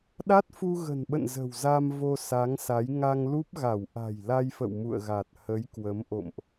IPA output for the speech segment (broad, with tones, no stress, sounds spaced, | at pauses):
ɗ a˦˥ t̚ f u˧ ɣ ə̤˨˩ n ɓ ə̰˧˨ n z ə̤˨˩ w z a˧ m v o˧ s a˨˦ ŋ s a˨˦ j ŋ a˧ ŋ l u˦˥ p̚ ɣ a˧˩ w ʔ a̤˨˩ j l a˧ j f ə̰˧˨ w m ṵ˧˨ ə̯ ɣ a˨˩ t̚ h ə˨˦ j k w ə˨˦ m ʔ o̰˧˨ m ʔ